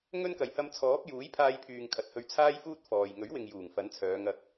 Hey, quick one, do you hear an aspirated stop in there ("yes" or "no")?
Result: yes